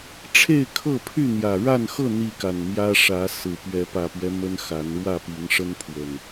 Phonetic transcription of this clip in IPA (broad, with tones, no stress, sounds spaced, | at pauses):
ʈ͡ʂʰ e˥˨ ɪ̯ kʰ ɤ˥˨ pʰ y˥˨ n̪ j ä˨˩ ɻ a˥˨ n x ɤ˥˨ n̪ i˥˨ k a˨˩ n m j ä˦ ʂ ä˨˦ s ɹ̩˨˩ p ɥ ɛ˨˦ p ä˨˩ p ɥ ɛ˦ m ə˦ n x a˨˦ n ɻ w ä˥˨ p i˨˦ ŋ ʂ ə˦ n pʰ w ə˨˩ n